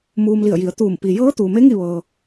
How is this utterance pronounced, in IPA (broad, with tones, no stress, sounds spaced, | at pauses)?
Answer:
m uː˧ m l i˧˩ ə̯ j i˩˧ ə̯ t̪ uː˧˩ m p i˩ j ɤː˧˥ t̪ uː˩ m e˧˥ ŋ i˥˨ ʋ ɤː˩